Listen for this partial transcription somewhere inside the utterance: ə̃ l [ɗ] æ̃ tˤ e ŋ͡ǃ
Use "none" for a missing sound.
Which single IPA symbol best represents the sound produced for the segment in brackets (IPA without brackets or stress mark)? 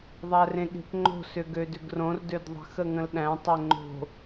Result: ɗ